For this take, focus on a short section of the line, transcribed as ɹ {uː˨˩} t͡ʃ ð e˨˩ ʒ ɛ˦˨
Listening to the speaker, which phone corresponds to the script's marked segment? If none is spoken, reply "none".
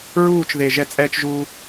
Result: uː˦˨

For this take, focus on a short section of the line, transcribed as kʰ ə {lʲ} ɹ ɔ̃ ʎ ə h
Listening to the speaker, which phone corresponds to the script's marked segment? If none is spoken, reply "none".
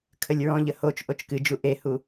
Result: lʲ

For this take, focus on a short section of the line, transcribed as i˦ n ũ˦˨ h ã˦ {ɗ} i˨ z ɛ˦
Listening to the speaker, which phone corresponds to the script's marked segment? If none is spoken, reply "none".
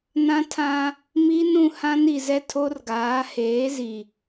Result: n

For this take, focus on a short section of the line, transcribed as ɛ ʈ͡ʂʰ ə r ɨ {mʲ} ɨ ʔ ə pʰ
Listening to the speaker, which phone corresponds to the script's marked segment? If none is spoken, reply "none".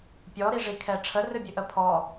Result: bʲ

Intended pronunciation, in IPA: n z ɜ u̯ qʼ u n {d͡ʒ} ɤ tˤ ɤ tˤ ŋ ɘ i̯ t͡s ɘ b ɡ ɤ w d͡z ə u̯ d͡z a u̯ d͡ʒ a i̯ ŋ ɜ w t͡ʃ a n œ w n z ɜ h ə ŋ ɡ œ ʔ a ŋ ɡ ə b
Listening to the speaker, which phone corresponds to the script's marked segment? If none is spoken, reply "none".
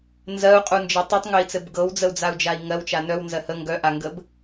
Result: d͡ʒ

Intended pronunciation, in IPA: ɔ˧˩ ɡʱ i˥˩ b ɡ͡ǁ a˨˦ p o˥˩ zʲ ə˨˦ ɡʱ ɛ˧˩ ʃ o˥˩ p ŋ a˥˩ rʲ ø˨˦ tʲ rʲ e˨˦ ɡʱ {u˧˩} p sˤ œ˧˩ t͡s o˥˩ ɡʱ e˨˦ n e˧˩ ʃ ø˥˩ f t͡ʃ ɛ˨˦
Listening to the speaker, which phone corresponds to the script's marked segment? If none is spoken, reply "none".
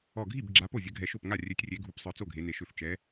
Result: u˧˩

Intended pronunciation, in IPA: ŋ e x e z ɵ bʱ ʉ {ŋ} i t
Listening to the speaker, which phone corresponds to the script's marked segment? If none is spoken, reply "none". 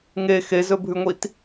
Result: ŋʷ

